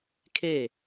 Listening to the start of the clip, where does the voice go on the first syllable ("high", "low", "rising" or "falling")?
falling